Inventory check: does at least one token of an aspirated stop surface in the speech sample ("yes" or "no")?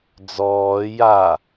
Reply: no